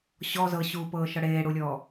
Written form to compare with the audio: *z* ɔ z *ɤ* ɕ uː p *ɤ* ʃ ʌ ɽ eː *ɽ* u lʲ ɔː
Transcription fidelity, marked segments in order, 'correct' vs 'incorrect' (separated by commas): incorrect, correct, incorrect, correct